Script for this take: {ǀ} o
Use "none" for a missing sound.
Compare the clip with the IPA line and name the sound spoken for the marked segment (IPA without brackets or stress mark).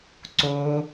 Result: ǀ